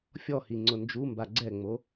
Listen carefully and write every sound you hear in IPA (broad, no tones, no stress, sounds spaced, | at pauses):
fʲ ɔ h i ŋ͡ǀ ʊ n d͡ʒ u m b a ɡ͡ǀ ɛ ŋ͡m o